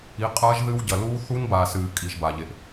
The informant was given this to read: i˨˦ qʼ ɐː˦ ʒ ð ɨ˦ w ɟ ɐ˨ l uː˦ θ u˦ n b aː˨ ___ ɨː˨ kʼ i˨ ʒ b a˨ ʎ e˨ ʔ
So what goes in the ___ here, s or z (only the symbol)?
s